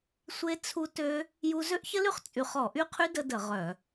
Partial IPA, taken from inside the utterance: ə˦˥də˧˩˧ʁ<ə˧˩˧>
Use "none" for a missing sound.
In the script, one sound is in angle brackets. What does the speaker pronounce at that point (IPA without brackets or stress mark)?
œ˧˩˧